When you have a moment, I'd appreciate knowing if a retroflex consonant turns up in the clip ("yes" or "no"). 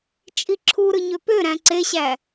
no